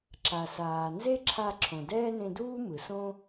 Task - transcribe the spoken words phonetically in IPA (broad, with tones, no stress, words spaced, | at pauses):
ǁa˩saː˩nze˥ ǁʰa˧ ǁʰõ˩dɛː˥nẽ˧duː˥ mɯ˩sõ˥